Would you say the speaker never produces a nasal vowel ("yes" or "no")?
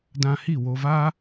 no